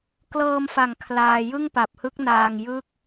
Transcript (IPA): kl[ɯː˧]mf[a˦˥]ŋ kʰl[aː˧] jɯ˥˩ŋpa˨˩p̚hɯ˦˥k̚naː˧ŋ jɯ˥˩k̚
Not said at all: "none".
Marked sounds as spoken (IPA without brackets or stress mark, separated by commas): ɤː˧, a˨˩, aː˧